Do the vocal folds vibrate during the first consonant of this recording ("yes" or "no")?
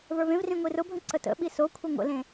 yes